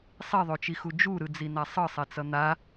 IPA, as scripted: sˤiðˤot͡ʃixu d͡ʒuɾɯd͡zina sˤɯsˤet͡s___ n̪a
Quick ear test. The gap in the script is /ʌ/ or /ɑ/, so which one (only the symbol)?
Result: ʌ